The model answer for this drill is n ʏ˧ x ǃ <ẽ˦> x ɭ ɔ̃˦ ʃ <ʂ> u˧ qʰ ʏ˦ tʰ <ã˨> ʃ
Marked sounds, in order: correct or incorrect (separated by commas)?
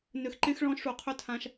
correct, correct, incorrect